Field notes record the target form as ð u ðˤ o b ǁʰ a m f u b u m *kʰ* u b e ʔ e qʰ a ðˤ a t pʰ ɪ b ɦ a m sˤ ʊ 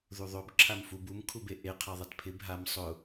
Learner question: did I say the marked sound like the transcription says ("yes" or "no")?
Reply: yes